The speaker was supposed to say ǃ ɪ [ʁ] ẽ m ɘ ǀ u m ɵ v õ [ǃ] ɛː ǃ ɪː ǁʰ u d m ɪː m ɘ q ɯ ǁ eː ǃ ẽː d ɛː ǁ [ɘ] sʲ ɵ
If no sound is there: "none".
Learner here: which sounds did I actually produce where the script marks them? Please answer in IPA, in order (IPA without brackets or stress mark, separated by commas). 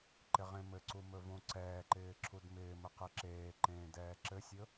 ʁ, ǀ, ɘ